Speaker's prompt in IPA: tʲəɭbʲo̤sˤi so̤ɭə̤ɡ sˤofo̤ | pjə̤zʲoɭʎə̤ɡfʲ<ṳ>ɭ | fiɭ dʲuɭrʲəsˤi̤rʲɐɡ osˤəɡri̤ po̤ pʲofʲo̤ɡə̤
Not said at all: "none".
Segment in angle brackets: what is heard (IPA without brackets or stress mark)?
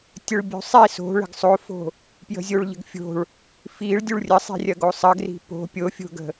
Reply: o̤